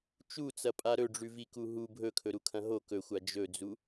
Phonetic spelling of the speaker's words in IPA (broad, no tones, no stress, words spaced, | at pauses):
t͡ʃut͡sɐpʼa ɾɵɖ͡ʐʉviku ɦu bʱɵkʰɵɾukʰɐ̃ ɦo kɵxʷa d͡ʒɵd͡zu